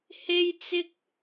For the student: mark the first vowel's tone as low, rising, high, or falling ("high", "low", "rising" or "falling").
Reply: high